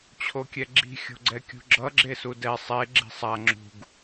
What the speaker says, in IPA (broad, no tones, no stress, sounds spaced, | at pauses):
t͡ɕʰ o kʲ ɛ ɡ͡ǁ i̤ xʲ o̤ ɡ͡ǀ ɛ kʲ ṳ ɡ͡ǁ ʌ ɡ͡ǁ e s u d ɛ sˤ e ɡ͡ǁ i̤ sˤ a ŋ͡ǁ ṳ ɡ